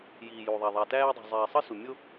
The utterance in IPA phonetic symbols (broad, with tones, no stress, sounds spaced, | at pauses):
j iː˩ j u˩ ðˤ æ˩ ðˤ æ˩ t æː˦ dˤ ṳ˩ zˤ iː˩ sˤ ɯ˦ s u˩ mʲ o˦